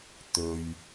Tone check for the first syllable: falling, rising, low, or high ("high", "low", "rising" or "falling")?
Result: low